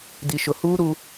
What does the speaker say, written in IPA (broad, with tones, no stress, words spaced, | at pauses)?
di˨ʃʊ˨huː˦ ɾu˦